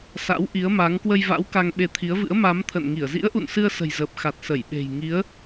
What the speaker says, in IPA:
s a̰˧˥ w ʔ i˨˦ ə̯ m a˨˦ ŋ k w ə˧ j v a̰˧˥ w k a˧ ŋ ɓ e˧ t̪ʰ i˨˦ ə̯ v ɨ̰˧˥ ə̯ m a˨˦ m t̪ʰ ə̰˧˨ n ŋ i˧˩ ə̯ z ḭ˧˥ ə̯ ʔ ṵ˧˨ n s ɨ˧ ə̯ s ə̤˨˩ j z əː˨˩ p̚ x a˨˩ t̚ s ə˧˩ j ɓ e̤˨˩ j ŋ i˨˦ ə̯

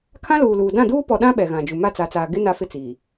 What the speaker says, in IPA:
kʰ ã˦ l uː˨ l uː˨ d ã˦˨ d uː˦ p ɔ˨ ɗ ã˦ ɓ ɛ˨ ɣ ã˨ d͡ʒ u˨ m a˦˨ t͡s a˨ t͡s aː˨ ɡ ɪ˦ n a˦ f ɪ˦ t͡s iː˨

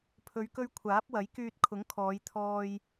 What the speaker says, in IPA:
pʰ ɵ˨˧ ɥ k ɵ˧ ɥ kʷʰ aː˨˥ p̚ w ɐ˨˥ j k yː˧ t̚ kʰ ʊ˨˥ ŋ kʰ ɔː˨˧ j t̪ʰ ɔː˧ j

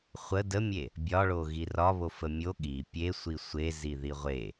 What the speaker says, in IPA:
χʷ ə d ə mʲ e | bʲ ɒ ɭ o ɣ i r ɒ β o f ə mʲ o ɠ i pʲ e sʷ i sʷ e z i ð i ʁʷ e

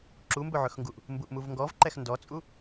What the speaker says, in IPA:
ǁ u m b ɵ ʕ ɵ x ŋ ɡ u ʔ | m b u ʔ m u v ŋ ɡ ɔ v ǃ ɛ x n d ɔ t͡sʼ u

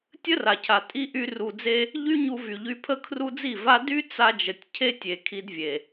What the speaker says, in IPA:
tʲ ə˦ r a˨ cʰ a˨ tʼ i˦ ʔ y˦ r u˧ d͡z e˦ | ʎ y˦ ɲ u˧ v y˨ ʎ y˧ pʰ ə˦ kʰ r u˦ d͡z i˦˨ v a˦ d y˦ t͡s a˧ d͡ʒ ə˨ tʲ cʰ e˦ tʲ e˨ kʰ i˧ d vʲ e˨

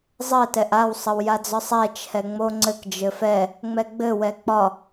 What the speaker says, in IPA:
zˤ ɘ t ɛ ʔ a w sˤ ə w j a d͡z ɒ sˤ ɛ t͡ʃʰ ɛ ŋ͡m o ŋ͡ǀ ɘ k d͡ʒ ɘ f ɛ | ŋ͡m ɛ ɡ͡b ɘ w ɛ k͡p ɒ

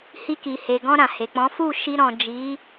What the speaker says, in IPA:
h i˧ k i˨ h e˨ ɡ ɔ̃˧ ɾ ã˨ h e˨ k͡p ɔ̃˨˦ f u˦˨ ʃ i˧ ɾ ɔ̃˨ d͡ʒ i˨˦

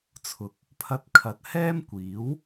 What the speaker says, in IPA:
t͡sʰ ʊ˨˥ k̚ | pʰ ɐ˧ t̚ kʰ ɐ˨˥ t̚ h ɛː˥ m kʷ iː˨˥ w

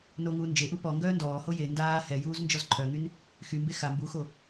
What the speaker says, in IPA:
n o ŋ uː n d͡ʒ e ʔ u p ɔ ŋ ɡ œː n d ɔː h o j e n d aː h ɛ j uː z n d͡ʒ ɔ z ǃʰ œ ŋ y n | x y m b e x a m b u x o

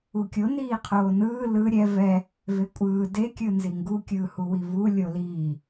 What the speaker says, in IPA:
u kʲ o n iː qʰ oː n ɯː l ɯ ɾʲ ɛ v ɛ | v e kʷʼ ɯː d e kʲ ɯ n z i ŋ ɡ u kʲ ɯː h u w i v u lʲ o l iː

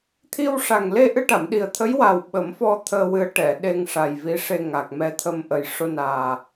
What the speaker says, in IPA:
t̪ʰ i˧ w ʂ a˨˩ ŋ l e˧ ʔ ɨ˧ ʈ a˨˩˨ m ɗ i˨˩ ə̯ t̪ʰ ə˧˥ j w a˨˩ w ɓ ə˨˩˦ m f ɔ˧ t̪ʰ əː˧ w ɨ˧˥ ə̯ ʈ ɛ˨˩˨ ɗ e˧ ŋ ʂ a˨˩ j v i˧˥ ʂ e˧ ŋ a˨˩ k̚ m ɛ˧ t̪ʰ ə˧ m ʔ ə˨˩ j ʂ o˧ n aː˨˩

